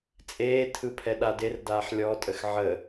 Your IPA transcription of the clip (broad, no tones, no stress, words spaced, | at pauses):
t͡sʼeːtʰɯpʰɛɗa derdaːħ lʲɔtʼəx ʕə